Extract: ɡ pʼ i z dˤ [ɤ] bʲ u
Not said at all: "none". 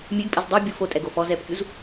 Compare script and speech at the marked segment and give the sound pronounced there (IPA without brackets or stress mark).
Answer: ɤ